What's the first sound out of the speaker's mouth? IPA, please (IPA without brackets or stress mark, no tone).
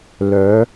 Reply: l